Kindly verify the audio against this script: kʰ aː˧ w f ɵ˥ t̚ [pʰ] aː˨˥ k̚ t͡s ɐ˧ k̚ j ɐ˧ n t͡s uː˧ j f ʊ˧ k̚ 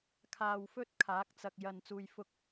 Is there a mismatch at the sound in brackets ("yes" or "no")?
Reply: yes